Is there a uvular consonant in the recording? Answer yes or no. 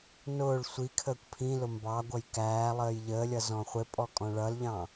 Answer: yes